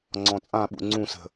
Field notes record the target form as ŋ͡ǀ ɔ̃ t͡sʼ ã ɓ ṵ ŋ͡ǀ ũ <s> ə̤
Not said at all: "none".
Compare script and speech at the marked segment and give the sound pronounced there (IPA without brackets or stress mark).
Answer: s